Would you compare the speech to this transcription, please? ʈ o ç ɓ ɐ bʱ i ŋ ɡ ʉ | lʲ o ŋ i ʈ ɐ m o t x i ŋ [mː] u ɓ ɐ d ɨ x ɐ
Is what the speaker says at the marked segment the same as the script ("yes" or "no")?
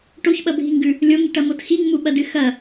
no